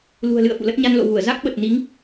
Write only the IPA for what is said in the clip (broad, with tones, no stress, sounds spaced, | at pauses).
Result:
l ṳ˨˩ ə̯ l ɨ̰˧˨ ə̯ f ṵ˧˨ l ə˦˥ t̚ ɲ a˧ n l o̰˧˨ v u˧˩ ə̯ z a˦˥ k̚ ɓ ə˨˩ t̚ n i˨˦ ŋ